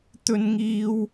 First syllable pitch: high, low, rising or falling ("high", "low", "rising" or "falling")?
high